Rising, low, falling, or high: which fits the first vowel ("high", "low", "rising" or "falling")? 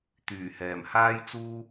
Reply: low